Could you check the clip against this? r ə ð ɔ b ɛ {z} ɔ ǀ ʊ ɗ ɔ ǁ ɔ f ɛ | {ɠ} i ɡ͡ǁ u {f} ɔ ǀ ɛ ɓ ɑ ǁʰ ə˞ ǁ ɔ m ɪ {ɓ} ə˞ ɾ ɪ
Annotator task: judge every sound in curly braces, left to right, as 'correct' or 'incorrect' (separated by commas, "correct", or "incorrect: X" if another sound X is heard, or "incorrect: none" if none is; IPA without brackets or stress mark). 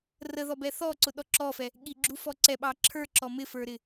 incorrect: θ, correct, correct, incorrect: f